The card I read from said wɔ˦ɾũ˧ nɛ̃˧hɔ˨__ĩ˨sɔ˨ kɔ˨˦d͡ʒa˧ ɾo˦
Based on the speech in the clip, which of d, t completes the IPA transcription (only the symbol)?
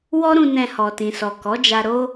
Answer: t